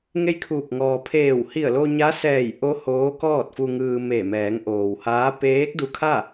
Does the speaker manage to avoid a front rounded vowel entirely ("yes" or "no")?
yes